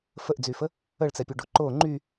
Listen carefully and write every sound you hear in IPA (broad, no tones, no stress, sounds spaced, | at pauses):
f ə ʔ d͡z y f ə | ə ɭ t͡s ɛ pʲ u ɖ o ǃ o ŋ͡ǃ y